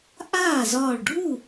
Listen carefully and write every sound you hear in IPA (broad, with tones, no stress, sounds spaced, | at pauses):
ʔ aː˥˩ z ɒː˧˩ ɭ ɖʱ u˥˩